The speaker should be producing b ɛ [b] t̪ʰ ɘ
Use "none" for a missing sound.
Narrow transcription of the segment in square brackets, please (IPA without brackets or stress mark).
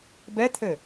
none